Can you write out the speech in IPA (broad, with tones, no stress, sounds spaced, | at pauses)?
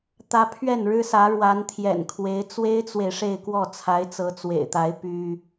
t̪ ä˧˥ pʰ ɥ ɛ˥˩ n ɻ ɻ̩˥ s ä˧˥ ɻ w a˧˥ n t̪ʰ j ɛ̰˨˩ n kʰ w e˧˥ ɪ̯ t͡s w e˥ ɪ̯ t͡s w e˨ ɪ̯ ʂ e˥˧ ɪ̯ k w ɔ˥˩ t͡sʰ a˧˥ ɪ̯ t͡s ɤ˧˥ t͡s w ḛ˨˩ ɪ̯ t̪ a˧˥ ɪ̯ p y˥